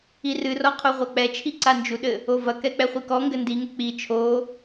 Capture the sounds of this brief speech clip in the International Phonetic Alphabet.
i r ɨ r ɔ qʰ o ʁʷ a k͡p ɛ t͡ʃʰ i ǀ a n d͡ʒ u ɗ ɘ | o v ɐ k ɛ k͡p ɛ χʷ i k ɔ ŋ ɡ ɘ n d i ŋ ɘ k͡p i t͡ʃʰ o

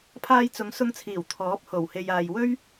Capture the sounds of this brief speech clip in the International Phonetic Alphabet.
pʰ aː˧ j t͡s ʊ˨˧ ŋ s ʊ˧ ŋ t͡sʰ iː˨˩ w t̪ʰ ɔː˨˥ p̚ h o˨˩ w h e˨ j aː˨ j w ɵ˥ ɥ

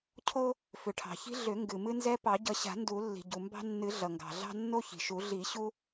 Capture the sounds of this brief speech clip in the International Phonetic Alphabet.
cʰ o˦ | f ʏ˩ ʈʰ ɑ̤˩ ç i̤˦ ɮ ʏ˨˩˦ ŋ ɡ ɨ˩ m ɨ˦ n z ɛ˦ p ɑ˨˩˦ ɟ ʌ˨˩˦ ɕ a̤˨˩˦ n d u˨˩˦ lː i̤˩ ɟ u˩ m b ɑ̤˦ nː ɨ˨˩˦ ɮ ʌ˩ ŋ ɡ ɑ̤˩ ɮ ɑ̤˦ nː o˦ ç i̤˩ ʃ u˨˩˦ ɮ i˨˩˦ ɕ u˦

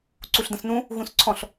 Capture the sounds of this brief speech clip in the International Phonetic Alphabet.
ǀ u ɬ d ə̃ s n ũ | ɣ ũ s ǀʰ ɔ̃ ɬ

